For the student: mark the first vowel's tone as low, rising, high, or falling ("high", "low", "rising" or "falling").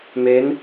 rising